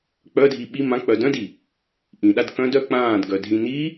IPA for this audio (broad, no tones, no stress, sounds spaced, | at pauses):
k͡p œ dʱ i ɓ i m ã k͡p œ d œ̃ d i | ʔ ĩ ɗ a d k œ̃ d œ k͡p ãː d ɡ œ dʱ ĩ n i